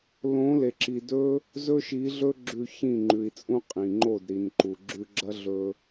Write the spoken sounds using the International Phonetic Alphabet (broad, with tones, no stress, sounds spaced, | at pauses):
l õ˨˦ l e˨ ǁ i˨ d ɵ˦ | z ɵ˧ ʃ i˨˦ ɮ ɵ˦ ɡ͡ǁ ʉ˧ ç ĩ˦˨ ŋ͡ǃ ʉ˨ i̯ t͡sʼ ũ˦ qʼ ĩ˨ ŋ͡ǃ o˦˨ d ɾ i˨ n ǃ u˨ ɡ͡ǁ ʉ˧ ɡ͡ǁ ɐ˦ ɮ ɵ˧